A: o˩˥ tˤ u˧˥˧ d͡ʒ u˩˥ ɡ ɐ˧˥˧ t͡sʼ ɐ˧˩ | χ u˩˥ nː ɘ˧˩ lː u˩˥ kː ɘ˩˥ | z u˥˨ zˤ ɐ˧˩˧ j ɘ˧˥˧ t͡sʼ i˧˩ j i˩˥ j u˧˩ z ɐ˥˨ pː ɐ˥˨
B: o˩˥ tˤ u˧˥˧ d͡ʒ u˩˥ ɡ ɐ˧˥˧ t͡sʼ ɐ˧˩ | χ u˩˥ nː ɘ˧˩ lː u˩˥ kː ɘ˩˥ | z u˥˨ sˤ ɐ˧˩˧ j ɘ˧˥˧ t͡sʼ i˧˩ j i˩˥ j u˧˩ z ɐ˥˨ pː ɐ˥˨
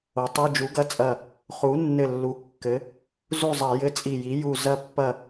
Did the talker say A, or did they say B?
A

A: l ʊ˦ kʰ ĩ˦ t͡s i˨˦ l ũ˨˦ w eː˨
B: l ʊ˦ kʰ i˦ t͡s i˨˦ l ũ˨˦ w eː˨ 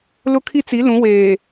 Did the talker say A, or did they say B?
B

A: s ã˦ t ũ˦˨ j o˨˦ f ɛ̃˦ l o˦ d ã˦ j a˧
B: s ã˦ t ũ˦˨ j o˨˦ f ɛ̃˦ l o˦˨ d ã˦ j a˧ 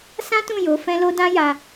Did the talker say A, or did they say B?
A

